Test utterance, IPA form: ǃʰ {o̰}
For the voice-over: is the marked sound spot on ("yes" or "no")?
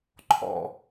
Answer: no